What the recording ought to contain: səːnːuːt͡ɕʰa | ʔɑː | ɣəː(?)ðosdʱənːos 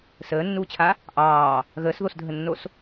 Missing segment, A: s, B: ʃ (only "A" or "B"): A